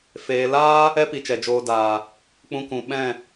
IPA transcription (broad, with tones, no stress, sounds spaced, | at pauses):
f eː˧ l aː˦ | ɛ˦ p i˨ t͡ʃ ɛ˨ d͡ʒ oː˨ d aː˨ | k͡p ũ˧ k ũ˨ ɓ ɛ̃˦˨